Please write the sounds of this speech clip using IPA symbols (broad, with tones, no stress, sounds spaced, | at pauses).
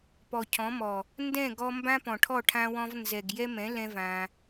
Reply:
p ɔ˨ cʰ ɔ̃˨˦ m ɔ˨ | n d ɛ̃˦˨ ɡ ɔ˧ m b ã˦ p ɔ̃˨ ʈʰ ɔ˦˨ ʈʰ ã˦ w ɔ̃˦ v n z ɛ˨ ɡ j ɛ˦ m ɛ̃˨˦ l ɛ̃˦ v ã˧